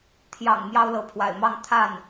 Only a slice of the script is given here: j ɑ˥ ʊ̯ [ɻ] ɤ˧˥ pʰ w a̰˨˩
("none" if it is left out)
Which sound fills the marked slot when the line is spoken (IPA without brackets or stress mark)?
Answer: l